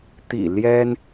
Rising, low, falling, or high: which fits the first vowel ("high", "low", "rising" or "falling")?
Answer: low